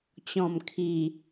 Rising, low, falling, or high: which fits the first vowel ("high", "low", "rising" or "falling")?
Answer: low